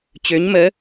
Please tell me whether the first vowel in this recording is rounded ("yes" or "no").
yes